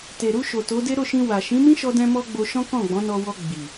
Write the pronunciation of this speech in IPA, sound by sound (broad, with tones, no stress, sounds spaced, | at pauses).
t e˨ ɾ u˧ ʃ o˨ t o˨˦ d e˦ ɾ o˦˨ ʃ ĩ˧ w a˨ ʃ ĩ˨˦ m ĩ˦ ʃ ɔ˧ d ɛ̃˧ m ɔ˧ ɡ͡b o˧ ʃ ɔ̃˦ k ɔ̃˦˨ ɡ͡b ɔ̃˨˦ n ɔ˧ w ɔ˧ ɡ͡b i˨